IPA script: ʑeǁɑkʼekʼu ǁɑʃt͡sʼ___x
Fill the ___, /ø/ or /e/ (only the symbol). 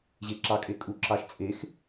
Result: e